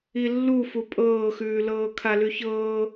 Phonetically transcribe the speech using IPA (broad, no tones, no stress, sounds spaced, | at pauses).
i lː u f u pʼ ɤː x ʉː l ɤː kʰ a l ʉ ç ɤː